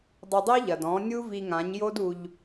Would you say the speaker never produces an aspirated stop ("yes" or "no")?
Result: yes